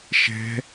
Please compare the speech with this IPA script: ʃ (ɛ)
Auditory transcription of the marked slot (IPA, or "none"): ɛ̤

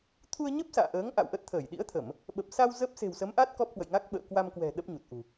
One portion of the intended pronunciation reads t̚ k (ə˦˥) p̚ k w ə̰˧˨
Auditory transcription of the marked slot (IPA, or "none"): ɔ˦˥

